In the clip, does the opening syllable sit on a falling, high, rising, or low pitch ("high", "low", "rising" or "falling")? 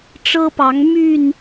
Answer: high